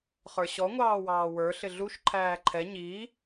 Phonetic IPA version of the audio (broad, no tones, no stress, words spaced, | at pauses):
χə˞ɕɔ ŋʷɑːwɑːwə˞ ɬɪɮuʃ ǃʰæːǃʰɛ ɲi